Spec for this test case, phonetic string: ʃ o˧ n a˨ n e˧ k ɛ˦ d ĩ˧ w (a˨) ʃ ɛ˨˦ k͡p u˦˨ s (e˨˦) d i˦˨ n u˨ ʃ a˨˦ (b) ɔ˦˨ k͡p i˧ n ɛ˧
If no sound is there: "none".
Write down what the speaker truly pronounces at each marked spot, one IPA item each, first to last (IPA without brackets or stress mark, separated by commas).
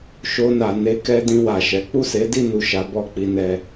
a˨, e˨˦, b